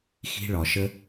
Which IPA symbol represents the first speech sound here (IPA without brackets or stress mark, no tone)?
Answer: x